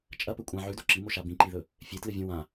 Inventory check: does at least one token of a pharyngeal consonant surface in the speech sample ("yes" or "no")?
yes